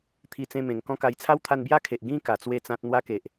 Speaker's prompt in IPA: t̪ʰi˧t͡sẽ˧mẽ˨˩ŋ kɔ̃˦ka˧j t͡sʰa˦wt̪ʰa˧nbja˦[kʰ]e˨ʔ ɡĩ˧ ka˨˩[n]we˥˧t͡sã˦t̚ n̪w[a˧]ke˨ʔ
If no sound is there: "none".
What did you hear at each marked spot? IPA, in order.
kʰ, t͡s, a˦

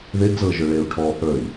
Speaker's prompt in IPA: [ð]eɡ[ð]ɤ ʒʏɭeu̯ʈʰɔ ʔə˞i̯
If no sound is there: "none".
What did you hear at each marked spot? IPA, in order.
ð, z

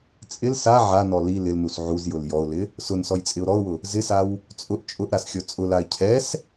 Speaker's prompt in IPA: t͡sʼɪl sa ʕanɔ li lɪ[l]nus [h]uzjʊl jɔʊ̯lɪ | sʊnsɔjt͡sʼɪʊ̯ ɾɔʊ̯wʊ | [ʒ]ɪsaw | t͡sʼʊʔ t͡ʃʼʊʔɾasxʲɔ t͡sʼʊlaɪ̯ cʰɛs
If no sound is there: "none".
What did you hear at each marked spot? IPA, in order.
l, ʕ, z

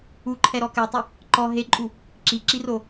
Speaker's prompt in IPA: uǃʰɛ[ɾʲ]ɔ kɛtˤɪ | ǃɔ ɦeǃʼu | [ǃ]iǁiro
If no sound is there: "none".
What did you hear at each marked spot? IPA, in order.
ɾ, ǁ

